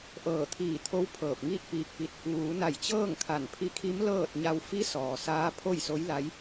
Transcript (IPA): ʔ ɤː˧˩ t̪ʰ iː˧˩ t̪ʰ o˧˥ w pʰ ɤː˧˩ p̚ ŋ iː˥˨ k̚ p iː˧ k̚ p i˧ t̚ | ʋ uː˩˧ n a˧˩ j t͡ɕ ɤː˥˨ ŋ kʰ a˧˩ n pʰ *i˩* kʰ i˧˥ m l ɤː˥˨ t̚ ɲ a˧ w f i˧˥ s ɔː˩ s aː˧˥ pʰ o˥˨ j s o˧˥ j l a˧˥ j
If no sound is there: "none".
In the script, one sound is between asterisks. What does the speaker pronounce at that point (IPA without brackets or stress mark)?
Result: i˧˥